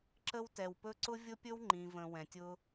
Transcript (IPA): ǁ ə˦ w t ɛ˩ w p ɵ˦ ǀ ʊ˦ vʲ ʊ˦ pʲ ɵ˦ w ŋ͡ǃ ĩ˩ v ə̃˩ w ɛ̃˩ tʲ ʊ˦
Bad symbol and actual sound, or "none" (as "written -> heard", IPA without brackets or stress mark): none